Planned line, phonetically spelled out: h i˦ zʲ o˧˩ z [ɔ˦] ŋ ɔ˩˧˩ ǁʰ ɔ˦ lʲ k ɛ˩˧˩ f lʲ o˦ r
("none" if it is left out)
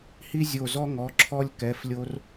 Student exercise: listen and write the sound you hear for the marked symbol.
ɔ˦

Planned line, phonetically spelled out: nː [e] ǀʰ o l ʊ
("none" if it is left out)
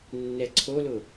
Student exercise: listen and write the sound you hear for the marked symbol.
ɛ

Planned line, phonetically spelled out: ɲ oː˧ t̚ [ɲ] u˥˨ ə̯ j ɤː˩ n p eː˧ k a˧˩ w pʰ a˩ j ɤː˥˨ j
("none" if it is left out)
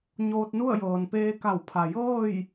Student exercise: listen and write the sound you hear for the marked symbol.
n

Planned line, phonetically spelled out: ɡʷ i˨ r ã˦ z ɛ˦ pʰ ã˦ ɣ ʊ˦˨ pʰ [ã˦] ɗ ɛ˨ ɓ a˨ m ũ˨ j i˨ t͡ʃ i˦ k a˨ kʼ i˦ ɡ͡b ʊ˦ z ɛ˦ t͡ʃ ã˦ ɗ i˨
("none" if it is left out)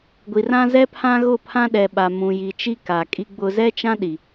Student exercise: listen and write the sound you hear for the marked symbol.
ã˦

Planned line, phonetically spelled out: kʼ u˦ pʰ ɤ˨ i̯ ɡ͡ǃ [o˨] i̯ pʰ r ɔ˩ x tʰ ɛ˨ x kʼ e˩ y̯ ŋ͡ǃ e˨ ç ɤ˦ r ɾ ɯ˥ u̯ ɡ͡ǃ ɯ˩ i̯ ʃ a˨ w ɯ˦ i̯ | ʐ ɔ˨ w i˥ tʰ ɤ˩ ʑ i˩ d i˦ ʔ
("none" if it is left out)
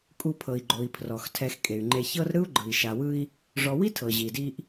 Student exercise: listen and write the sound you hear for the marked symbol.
o˨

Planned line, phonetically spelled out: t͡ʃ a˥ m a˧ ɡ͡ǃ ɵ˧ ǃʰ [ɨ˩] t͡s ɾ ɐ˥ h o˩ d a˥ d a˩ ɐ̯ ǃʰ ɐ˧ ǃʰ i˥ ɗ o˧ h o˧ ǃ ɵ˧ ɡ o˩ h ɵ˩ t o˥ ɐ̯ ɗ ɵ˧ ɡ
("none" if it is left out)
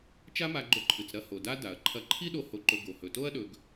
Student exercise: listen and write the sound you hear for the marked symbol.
ɨ˩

